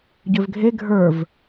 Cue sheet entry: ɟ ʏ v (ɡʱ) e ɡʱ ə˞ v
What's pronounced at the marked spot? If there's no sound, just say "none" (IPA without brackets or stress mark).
ɡʱ